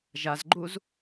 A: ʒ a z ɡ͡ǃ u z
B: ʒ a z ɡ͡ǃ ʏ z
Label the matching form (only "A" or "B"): A